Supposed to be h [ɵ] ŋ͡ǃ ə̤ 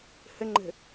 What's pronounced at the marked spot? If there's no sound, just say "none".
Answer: ə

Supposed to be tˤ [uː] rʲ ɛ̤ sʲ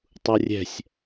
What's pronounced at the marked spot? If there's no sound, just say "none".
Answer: u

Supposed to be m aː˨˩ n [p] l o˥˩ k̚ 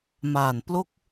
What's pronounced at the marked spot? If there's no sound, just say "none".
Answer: p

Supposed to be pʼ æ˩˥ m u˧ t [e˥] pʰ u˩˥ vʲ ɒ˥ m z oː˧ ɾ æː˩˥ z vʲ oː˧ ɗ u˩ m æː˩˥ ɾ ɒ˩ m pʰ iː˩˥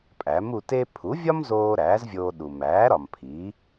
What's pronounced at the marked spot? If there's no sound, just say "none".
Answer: e˥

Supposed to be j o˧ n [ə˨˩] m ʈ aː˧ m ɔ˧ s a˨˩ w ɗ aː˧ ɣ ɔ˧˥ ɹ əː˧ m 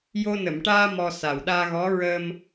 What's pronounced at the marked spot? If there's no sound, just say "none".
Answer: ə˨˩˨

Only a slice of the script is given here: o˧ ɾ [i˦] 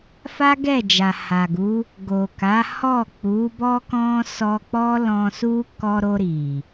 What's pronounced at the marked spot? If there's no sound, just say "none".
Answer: i˨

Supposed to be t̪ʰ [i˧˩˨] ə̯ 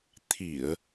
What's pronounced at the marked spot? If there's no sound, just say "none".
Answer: i˧˩˨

